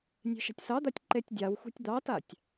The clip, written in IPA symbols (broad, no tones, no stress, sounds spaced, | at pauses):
nʲ e̤ ʃ a̤ tʲ s ɑ d̪ a tʲ ǃ e tʲ dʲ a w xʷ ɛ̤ tʲ d̪ ɑ t a tʲ